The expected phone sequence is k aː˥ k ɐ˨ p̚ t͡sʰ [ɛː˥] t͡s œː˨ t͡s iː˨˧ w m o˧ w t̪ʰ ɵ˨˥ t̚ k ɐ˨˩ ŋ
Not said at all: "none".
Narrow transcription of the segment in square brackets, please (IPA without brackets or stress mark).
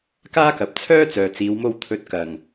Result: œː˥